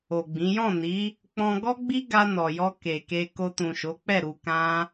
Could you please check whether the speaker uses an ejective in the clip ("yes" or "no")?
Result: no